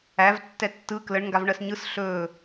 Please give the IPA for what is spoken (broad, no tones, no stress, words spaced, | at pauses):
æv tːɛtːɯ kləɳ ŋɡavɳɜsɲɯs ɬɵː